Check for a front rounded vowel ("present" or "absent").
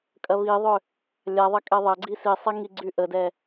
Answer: present